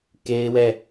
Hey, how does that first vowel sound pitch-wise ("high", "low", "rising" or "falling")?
high